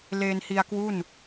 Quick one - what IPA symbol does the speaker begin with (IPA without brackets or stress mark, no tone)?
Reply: l